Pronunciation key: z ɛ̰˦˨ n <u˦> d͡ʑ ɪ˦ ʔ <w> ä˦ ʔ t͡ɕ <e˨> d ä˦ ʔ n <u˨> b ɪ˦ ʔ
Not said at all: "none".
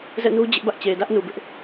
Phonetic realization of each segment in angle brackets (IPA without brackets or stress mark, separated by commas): u˦, b, e˨, u˨